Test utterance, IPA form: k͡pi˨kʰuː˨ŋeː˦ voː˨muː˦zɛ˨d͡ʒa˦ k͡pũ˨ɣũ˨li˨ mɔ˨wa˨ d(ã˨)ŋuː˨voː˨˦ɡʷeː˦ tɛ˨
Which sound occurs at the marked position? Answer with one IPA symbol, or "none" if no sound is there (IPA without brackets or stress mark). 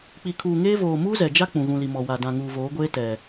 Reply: ã˨